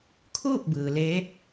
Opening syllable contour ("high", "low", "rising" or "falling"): falling